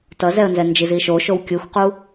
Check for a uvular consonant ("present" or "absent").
present